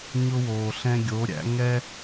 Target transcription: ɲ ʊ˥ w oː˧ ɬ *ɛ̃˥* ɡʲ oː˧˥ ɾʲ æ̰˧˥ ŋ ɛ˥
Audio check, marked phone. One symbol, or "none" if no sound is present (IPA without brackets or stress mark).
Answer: ɛ̃˥